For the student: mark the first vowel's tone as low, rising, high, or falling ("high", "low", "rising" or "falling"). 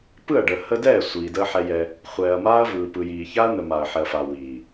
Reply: falling